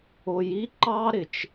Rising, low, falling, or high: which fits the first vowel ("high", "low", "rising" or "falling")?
low